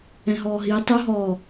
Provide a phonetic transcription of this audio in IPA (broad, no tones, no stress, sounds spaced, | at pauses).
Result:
ɛ̃ ɦ ɔː ɦ iː tˤ o ɦ ɔː